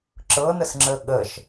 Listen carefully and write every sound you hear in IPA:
ǁ ɤ n ə s ŋ͡ǁ əː ɠ ə ʃ

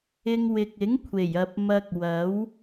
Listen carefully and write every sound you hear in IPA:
ɪ˧ ŋ w ɪ˨ k̚ ɪ˨˥ ŋ kʷʰ e˨˩ j ɐ˨ p̚ m ɐ˧ k̚ w ɐ˨˥ w

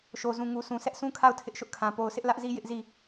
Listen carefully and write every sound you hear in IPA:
ʃ o˨ z ũ˨ ŋ u˨ s ũ˨ s ɛ˦ ʔ sʰ ũ˦ kʰ a˦˨ ʊ̯ tʰ ɪ˦ ʔ ʃ ʊ˦ ʔ kʰ ã˨ p o˨ ʊ̯ sʰ ɪ˦ ʔ l ä˦ ʔ z i˦ j ɪ˦ ʔ z i˦˨

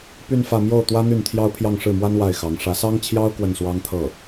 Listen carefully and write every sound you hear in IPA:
p y˥˧ n f ä˥˧ m j o˥˩ ʊ̯ t̪ w ä˥ n̪ y˥˩ n t̪ʰ j ɑ˥ ʊ̯ pʰ j ɑ˥˧ ŋ ʂ ɻ̩˥˩ m w a˥ n w a˥˩ ɪ̯ x ɑ˧˥ ŋ ʂ ä˧˥ s ɑ˥ ŋ t͡ɕʰ j ɑ˥ ʊ̯ k w ə˥˩ n s w ɑ˥ ŋ t̪ʰ ɤ˥˩

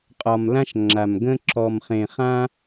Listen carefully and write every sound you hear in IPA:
qʼ ɒ˨ m l ã˦ ʃ ŋ͡ǁ a˨ m ɡ ə̃˦ ǁ ɔ˨ m χ ẽ˨ χ ã˦

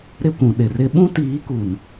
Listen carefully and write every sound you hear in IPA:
ɾ ɪ˦˨ kʷ ũ˨ ɗ ɪ˨ r ɪ˦ ɓ ũ˦ t iː˨˦ k u˨ n

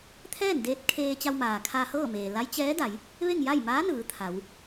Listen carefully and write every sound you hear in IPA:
t̪ʰ ɛː˥˨ n d eː˧ t̚ kʰ eː˧ t͡ɕ a˧ w m aː˩ kʰ aː˧ h ɤː˥˨ m eː˩ l a˧˥ j t͡ɕ ɛː˧˥ d a˩˧ j | ʋ e˥˨ ŋ j a˥˨ j m aː˧˥ n ɯː˩˧ t̪ʰ a˩˧ w

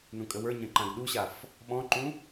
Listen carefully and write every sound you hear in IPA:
n ũ kʼ ə w ə˞ ɲ ɐ̃ ǃ ã ɡ ɗ u ɕ a f | ɓ ɔ̃ ǃ ũ

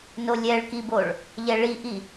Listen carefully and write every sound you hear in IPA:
n o lʲ ɛ ɭ k i b o ɭ | ʎ ɛ ɭ i ʔ i

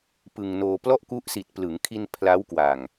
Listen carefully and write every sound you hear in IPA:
p ɯ˧ ŋ n oː˧ p l ɔ˥˩ ʔ k u˦˥ ʔ s i˨˩ t̚ p l ɯ˩˦ ŋ kʰ i˧ n pʰ l a˦˥ w k w a˨˩ ŋ

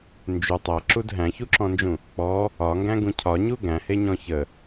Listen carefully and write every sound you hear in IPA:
n d͡ʒ ʉ tˤ æ ǁ u d ɦ æ̃ ç u ǁ ɔ̃ n d͡ʒ ũ | k͡p ɔ | ɒ ŋ ɡ æ̃ ɡ ũ cʰ ɒ ɲ u ɡ æ̃ h e ɲ ɔ̃ ç ə

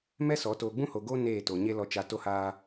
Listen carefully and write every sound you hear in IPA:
m ɛ˦ s ɔ˨˦ t oː˨ ɡ͡b ũ˦ h o˨ ɡ oː˦ n eː˦˨ t o˨ ɲ e˦ l ɔ˦ t͡ʃ a˦ t o˦ h aː˦

